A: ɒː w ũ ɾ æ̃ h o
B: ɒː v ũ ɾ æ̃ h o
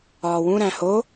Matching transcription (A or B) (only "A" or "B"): A